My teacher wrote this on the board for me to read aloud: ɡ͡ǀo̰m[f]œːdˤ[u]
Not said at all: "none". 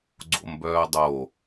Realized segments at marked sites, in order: b, o

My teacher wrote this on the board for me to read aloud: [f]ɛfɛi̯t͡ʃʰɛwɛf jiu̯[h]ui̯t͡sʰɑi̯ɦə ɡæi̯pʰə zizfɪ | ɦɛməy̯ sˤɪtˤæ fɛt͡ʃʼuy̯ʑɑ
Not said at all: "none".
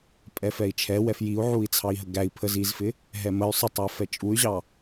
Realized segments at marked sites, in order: pʼ, ʕ

